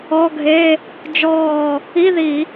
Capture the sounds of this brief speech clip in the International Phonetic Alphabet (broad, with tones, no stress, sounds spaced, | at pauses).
ɔ˧˥˧ ɡʱ e˧˥˧ | d͡ʒ ɔː˧˩ | i˧˥˧ ð i˧˩˧